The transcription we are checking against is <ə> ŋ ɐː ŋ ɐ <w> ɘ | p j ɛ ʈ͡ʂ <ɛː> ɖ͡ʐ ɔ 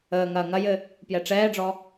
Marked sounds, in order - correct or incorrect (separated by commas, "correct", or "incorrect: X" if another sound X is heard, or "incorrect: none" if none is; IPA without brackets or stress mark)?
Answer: incorrect: əː, incorrect: j, correct